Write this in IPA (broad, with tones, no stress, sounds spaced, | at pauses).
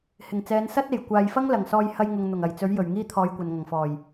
h ɪ˨˩ ŋ t͡s ɛː˨˧ n s ɐ˥ t̚ e˨˩ j kʷ aː˨ j f ɐ˥ ŋ l ɐ˨˩ ŋ s ɔː˧ j h ɐ˧ j ŋ ʊ˨ ŋ n̪ ʊ˨˩ ŋ ɐ˨˩ j t͡s ɵ˨˥ ɥ j ɵ˨˩ ɥ ŋ iː˥ t̪ʰ ɔː˧ j kʷ ɐ˨ n ŋ ɐ˨˩ ŋ f ɔː˨˩ j